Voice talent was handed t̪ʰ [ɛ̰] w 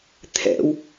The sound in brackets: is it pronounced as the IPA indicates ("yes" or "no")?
yes